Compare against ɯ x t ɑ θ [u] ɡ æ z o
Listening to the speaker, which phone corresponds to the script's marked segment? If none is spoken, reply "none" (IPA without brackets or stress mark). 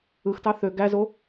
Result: ø